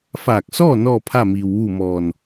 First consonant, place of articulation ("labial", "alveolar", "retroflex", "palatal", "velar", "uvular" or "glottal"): labial